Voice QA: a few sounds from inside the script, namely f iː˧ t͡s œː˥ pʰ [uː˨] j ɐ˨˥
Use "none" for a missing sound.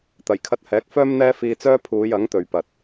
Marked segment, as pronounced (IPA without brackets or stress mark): uː˨˧